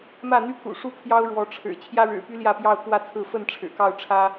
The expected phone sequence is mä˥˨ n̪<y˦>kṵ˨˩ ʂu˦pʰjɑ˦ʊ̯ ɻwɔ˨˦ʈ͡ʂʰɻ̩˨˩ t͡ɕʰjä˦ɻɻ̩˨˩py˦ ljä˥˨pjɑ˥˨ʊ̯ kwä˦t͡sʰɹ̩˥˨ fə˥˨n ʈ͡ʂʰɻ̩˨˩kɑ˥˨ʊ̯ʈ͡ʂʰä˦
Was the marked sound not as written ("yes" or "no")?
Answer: no